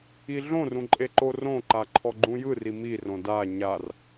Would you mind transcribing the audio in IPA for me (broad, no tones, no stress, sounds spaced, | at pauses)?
i ɮ õ r ũ ǃʼ e ǃ o r õ ǃ a ǃʰ ɔ ɡ͡ǃ ũ j ɯ r i m i r õ d a ɲ a r